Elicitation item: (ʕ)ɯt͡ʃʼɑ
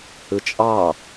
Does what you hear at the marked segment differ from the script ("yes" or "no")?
yes